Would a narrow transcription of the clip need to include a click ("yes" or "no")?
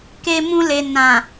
no